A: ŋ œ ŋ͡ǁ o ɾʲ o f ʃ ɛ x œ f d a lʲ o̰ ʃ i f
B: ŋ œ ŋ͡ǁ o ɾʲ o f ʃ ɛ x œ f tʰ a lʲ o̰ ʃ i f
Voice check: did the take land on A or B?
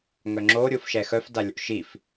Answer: A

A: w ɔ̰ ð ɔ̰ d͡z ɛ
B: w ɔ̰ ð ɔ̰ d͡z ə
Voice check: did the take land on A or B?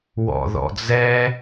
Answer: A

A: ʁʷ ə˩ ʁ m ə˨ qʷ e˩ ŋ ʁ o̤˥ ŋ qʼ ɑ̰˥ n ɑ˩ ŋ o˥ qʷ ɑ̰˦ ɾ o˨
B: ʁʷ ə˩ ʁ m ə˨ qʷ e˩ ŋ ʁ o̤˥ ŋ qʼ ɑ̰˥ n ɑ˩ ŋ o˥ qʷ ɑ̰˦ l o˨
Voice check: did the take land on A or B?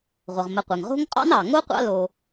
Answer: B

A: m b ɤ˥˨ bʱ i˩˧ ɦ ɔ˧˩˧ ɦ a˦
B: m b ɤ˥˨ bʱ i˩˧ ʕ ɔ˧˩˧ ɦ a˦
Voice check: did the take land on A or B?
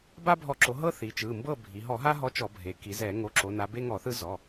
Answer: A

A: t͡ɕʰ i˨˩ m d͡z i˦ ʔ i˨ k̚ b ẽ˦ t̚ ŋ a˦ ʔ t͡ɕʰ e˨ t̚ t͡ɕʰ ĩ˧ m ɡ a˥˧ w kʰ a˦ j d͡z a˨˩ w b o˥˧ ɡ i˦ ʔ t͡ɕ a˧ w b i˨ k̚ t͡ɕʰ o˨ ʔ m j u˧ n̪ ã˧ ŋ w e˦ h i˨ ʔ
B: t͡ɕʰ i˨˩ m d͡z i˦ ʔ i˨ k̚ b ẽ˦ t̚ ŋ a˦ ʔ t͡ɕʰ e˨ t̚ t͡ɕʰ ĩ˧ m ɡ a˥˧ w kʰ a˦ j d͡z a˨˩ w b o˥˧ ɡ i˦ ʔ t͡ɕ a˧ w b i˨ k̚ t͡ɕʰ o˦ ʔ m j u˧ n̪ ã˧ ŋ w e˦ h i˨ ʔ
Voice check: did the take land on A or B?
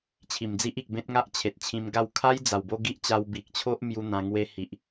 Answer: B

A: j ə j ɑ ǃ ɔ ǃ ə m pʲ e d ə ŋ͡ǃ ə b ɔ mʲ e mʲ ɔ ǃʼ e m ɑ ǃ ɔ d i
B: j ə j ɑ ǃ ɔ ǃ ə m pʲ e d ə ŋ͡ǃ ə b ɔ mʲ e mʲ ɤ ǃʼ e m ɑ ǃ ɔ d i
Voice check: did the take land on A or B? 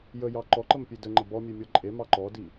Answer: A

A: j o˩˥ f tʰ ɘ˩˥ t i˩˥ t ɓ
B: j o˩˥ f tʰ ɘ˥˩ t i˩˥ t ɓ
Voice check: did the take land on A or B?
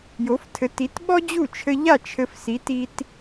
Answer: A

